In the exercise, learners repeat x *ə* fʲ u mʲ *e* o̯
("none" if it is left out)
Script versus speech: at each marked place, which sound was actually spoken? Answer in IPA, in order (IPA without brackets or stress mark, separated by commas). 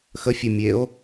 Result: ə, e